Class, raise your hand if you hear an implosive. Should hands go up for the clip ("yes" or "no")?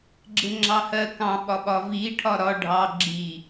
yes